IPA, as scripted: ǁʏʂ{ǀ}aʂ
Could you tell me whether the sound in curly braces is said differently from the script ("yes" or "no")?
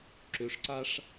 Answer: no